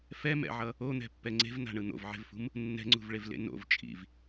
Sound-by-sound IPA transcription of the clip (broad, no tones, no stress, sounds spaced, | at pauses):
f ɛ m ɛ̰ ʕ ʌ | o n̪ ɛ̤ pː ɛ ŋ͡ǀ e̤ v n a̤ ɳ ɯ n̪ o̰ v ʕ e̤ v f ṳ m | nː ɛ̤ ŋ͡ǀ ṳ v ɭ e v l ḛ n o̰ v t͡ʃʼ ḭ v